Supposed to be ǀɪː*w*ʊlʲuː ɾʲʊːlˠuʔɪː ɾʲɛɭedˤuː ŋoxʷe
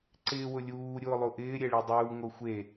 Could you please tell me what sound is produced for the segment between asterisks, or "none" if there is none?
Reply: w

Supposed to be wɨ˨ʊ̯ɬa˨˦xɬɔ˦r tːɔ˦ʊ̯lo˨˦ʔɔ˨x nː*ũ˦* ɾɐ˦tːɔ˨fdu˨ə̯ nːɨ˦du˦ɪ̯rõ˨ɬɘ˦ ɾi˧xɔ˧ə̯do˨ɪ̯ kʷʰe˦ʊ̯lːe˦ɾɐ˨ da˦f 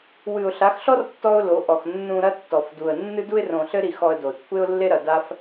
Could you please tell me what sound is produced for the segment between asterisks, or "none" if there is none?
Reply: ũ˧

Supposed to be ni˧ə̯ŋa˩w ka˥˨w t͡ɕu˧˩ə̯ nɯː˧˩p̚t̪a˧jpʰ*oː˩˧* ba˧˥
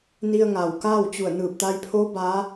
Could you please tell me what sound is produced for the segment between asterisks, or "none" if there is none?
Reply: oː˧˥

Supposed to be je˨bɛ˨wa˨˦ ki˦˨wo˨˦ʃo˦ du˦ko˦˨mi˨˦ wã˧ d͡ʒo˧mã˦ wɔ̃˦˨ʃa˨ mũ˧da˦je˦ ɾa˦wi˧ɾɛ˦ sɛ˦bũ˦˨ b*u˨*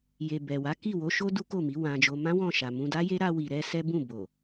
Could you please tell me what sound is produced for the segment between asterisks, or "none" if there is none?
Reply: o˨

